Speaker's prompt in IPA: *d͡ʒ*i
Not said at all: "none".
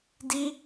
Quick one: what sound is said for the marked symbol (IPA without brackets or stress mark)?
d